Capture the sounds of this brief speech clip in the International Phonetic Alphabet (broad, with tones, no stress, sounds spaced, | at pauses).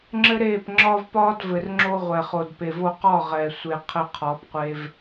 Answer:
ŋ͡ǁ ɘ˦ ɾ eː˦˨ p ŋ͡ǁ ɒː˦ v p ɒː˦ d v ɘ˨ r ŋ͡ǁ o˧ ʁʷ ɛ˨ χ o˨ d p e˨ v o˧ q ɒ˦˨ ʁ ɛ˨ sʷ e˨ qʰ ɘ˧ qʰ ɒ˨˦ p qʷ e˧ v